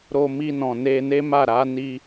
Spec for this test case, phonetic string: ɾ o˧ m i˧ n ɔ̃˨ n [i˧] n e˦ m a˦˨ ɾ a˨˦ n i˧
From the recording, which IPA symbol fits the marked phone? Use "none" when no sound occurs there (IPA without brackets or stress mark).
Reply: e˧